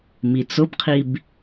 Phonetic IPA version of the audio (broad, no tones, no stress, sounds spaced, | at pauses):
m i t͡s ʊ b qʰ i b